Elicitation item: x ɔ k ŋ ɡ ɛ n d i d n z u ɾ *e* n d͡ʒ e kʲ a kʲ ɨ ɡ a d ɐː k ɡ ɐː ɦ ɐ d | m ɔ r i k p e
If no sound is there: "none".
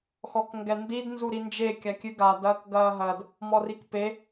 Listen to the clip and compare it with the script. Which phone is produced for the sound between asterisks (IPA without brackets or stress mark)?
i